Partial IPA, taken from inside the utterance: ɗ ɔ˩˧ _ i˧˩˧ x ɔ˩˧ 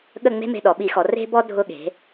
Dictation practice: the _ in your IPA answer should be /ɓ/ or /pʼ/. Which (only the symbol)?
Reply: ɓ